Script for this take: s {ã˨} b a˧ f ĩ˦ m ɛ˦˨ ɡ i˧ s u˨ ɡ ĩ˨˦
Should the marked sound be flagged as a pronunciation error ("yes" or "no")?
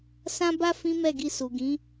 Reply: yes